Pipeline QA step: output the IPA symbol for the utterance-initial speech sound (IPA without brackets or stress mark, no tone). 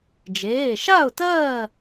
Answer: d͡ʒ